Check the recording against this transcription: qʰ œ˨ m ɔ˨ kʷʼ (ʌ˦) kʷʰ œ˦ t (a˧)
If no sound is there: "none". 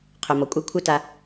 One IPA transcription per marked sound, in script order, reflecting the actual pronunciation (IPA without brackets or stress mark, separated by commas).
ɑ˦, a˧